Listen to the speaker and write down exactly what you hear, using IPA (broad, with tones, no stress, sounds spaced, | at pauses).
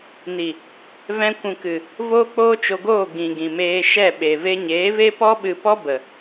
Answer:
n i˨ | v ɛ̃˧ kʷ ũ˨ k ɨ˨ | v oː˦ k͡p oː˦ t͡ʃ o˧ ɡ oː˦˨ ɡ ĩ˨ ɡ ĩ˨ m eː˧ ʃ ɛ˦˨ ɓ e˨ v e˧ ɲ eː˨˦ v e˦ p ɔ˦ ɓ ɨ˧ p ɔ˦ b ə˨